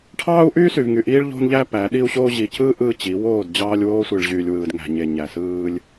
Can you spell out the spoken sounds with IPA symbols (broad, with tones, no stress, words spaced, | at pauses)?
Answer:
ʈʰɑː˦u̯ʔyː˦sy˨vŋy˨ ʔiː˦ɭʎo̤˦nʎæ˦ pæ˨˦ ɗi˦u̯ɕoː˦ ʑi˨cɯː˦ ʔɯː˦t͡ɕi˨˦ woː˦˨dd͡ʑɑː˦lʲwoː˦sʷi˨ɭ ʑyː˨lʲwɯː˨dŋæ̤˨ɲe˨ ɲæ˨sɯː˦lʲ